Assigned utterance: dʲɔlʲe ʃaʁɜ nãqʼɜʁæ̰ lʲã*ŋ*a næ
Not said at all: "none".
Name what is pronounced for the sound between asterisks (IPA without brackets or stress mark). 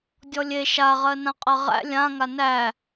ŋ